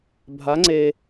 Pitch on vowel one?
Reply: rising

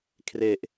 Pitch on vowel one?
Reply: low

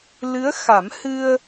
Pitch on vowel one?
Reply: rising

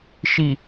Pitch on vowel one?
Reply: low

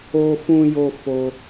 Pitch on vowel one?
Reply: high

